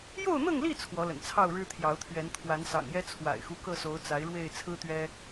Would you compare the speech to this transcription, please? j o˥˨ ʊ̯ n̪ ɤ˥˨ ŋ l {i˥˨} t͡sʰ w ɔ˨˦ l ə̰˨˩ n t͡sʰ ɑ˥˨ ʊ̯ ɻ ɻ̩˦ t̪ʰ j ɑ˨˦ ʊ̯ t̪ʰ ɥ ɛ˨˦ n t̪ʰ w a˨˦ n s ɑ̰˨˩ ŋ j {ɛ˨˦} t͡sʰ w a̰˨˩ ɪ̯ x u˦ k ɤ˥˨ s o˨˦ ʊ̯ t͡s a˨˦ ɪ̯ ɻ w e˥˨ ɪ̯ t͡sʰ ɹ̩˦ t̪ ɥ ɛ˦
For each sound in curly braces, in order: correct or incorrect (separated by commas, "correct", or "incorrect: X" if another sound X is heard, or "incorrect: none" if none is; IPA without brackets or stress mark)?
correct, incorrect: ɛ˦